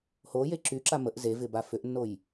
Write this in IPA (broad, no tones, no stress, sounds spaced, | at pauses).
h o j e ǁ y ǁ a m ə ʔ z e v ɪ b a f ʏ ʔ nː o j